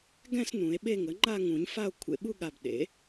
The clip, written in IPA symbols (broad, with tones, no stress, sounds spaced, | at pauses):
ɡ ɛ̃˥˧ s n ũ˨˩˦ e̯ ɓ e˥˧ ŋ ə˩˥ ŋ͡ǃ a˥˧ ŋ ũ˨˩˦ ɲ f a˥˧ o̯ kʷʰ ḛ˧˩ ɓ u˥˧ ɠ a˧˩ b ɗ ḛ˩˥